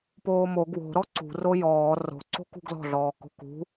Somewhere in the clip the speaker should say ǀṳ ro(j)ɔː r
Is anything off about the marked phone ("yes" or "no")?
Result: no